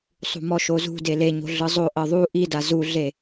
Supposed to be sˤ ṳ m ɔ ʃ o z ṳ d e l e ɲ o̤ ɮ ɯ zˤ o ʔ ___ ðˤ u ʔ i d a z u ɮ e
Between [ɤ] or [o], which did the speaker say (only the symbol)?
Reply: ɤ